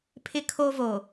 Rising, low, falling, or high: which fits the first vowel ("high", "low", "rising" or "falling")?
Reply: high